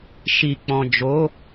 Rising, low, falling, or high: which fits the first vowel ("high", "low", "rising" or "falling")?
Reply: low